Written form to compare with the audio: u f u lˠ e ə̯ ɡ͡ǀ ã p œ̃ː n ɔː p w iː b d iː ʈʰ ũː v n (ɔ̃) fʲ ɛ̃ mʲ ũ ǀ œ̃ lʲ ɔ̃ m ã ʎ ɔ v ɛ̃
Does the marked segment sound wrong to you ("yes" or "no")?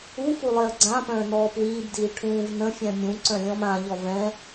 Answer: yes